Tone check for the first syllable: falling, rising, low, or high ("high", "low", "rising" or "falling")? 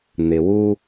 low